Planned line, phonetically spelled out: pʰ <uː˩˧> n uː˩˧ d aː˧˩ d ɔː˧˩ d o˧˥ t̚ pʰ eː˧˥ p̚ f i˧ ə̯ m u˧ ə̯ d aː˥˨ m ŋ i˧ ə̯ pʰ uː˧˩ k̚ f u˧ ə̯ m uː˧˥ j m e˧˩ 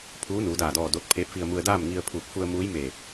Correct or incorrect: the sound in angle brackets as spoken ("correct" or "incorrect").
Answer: incorrect